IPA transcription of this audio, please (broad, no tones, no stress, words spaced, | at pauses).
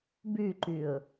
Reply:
bʉǃʉʊ̯